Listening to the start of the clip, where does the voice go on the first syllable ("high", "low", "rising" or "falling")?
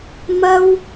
high